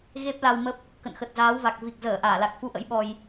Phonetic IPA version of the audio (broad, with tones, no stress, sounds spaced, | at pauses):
ɣ e˦˥ p̚ l a˧ w m ə˦˥ p̚ | k ə̰˧˨ n x ə˨˩ t̚ z aː˨˦ w v a˨˩ k̚ v i˨˩ k̚ z əː˧˩ ʔ aː˧˩ l a˨˩ k̚ f u˧ ʔ ə̰˧˥ j ɓ ɔ˧ j